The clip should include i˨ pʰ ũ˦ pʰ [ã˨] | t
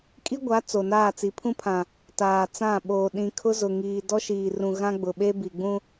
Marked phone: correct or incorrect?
correct